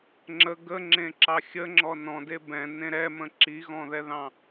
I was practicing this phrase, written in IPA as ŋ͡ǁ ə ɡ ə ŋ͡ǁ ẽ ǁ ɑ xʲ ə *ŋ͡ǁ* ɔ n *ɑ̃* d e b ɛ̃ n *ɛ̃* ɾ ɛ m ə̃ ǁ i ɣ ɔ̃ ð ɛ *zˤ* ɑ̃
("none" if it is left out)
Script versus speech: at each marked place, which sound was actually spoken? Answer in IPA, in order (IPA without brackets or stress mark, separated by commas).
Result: ŋ͡ǁ, ɔ̃, ẽ, ð